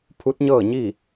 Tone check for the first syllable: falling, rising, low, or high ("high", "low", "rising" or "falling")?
rising